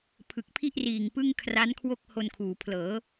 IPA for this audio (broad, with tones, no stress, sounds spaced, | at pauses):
pʰ ɯ˨˩ k̚ pʰ i˥˩ ʔ r iː˨˩ ŋ p ɯ˥˩ ŋ kʰ r a˦˥ n kʰ w o˥˩ k̚ h o˧ n kʰ uː˩˦ pʰ l ɤː˩˦